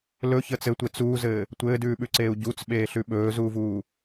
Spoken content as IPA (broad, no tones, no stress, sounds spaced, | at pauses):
l ɵ ç əː t͡s ɘ tʷ e t͡s uː z ɘː | tʷ ɘː d ʉː ɓ ʉ ǀ eː u̯ ɟ u t͡s ɓ eː ɬ ʉ ɓ ɵː z uː v uː